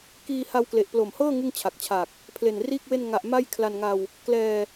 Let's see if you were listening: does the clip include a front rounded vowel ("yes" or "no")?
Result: no